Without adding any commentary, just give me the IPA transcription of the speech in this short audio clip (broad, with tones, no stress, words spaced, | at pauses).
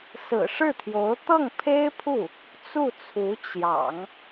sɹ̩˨˩ʂɻ̩˥˩t̪ʰjo˧˥ʊ̯ t̪ɤ˥˩ŋpʰe˥ɪ̯pʰu˥˩ | t͡su˥˩t͡sʰu˧˥ t͡ɕjɑ̰˨˩˦ŋ